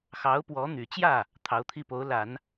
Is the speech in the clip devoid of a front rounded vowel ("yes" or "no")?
no